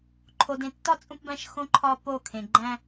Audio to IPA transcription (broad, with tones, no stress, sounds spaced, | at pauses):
ǃʰ o˨ d ẽ˨ tː ɒ˦ t͡sʼ ũ˦ p b æ̃˦ ʃ x õ˦ ǃʰ ɒ˦ p o˦˨ kʰ ẽ˨ ɡ͡ǃ æ̃˦